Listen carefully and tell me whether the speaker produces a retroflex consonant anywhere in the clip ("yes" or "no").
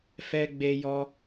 no